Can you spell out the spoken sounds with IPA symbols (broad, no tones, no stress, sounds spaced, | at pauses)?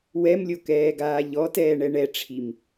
w ɛ m lʲ o k ɛː ɡ aː ʎ ɔ t ɛː ɳ ɛ ɳ ɛ ʈ͡ʂʰ i m